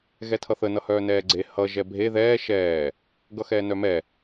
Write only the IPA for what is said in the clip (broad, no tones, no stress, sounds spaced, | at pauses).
ɣ ɛ tʰ ʌ θ ə n ʌ h œː n ɛː ɡ͡ǀ e h ʌ ʒ ɛ bʱ e ð ɛː ʃ ɛː | ɡ ʌ x ɛː n œ m ɛ